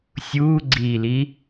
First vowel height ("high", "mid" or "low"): high